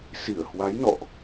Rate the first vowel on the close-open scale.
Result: close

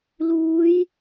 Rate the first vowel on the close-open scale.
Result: close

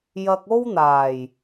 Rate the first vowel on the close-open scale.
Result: open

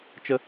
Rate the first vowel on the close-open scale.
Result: mid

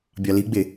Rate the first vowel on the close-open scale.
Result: open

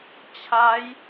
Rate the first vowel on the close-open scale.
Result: open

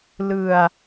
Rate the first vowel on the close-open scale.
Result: close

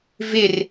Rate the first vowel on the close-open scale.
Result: close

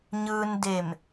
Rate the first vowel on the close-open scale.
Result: close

